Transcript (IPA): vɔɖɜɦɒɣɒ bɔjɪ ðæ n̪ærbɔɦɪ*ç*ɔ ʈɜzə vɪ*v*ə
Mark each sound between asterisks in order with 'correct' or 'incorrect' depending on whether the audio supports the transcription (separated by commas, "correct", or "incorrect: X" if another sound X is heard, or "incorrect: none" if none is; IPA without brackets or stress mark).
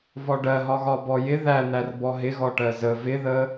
incorrect: ɣ, incorrect: ð